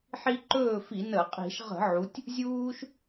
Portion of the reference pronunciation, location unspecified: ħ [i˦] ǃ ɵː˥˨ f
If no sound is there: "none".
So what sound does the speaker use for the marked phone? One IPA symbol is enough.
i˦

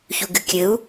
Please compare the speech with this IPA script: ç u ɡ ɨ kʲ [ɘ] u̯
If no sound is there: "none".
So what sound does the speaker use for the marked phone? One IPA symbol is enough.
ɘ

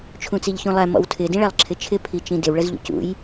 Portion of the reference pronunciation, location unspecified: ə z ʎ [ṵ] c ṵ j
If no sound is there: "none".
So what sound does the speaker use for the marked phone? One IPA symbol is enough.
ṵ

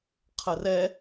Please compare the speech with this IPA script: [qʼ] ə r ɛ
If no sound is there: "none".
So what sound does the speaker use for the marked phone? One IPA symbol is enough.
qʰ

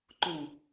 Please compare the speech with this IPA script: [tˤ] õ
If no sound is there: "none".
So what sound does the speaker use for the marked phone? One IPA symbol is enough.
ǃ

